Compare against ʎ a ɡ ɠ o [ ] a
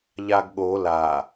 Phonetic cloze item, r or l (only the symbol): l